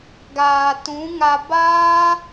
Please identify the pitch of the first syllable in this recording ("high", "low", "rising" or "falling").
low